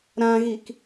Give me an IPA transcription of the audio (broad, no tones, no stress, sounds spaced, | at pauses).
ɾ ã ɣ i k